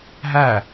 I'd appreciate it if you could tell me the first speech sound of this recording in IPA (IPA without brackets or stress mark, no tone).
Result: ɦ